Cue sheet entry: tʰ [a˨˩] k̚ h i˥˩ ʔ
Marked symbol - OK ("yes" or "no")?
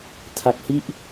no